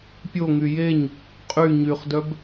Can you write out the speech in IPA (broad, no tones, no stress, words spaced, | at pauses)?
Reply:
pʲo ŋyjeɲ | qʼy ɲyχdœb